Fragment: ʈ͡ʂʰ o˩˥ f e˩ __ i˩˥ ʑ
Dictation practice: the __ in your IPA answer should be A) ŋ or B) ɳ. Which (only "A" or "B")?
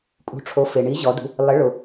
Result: B